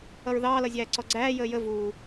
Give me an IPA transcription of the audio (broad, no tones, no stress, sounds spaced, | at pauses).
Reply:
ʌ ɹ ð ɑː l ʌ zʲ æː ǀ ɔ ɡ͡ǀ æː j əː j ə v uː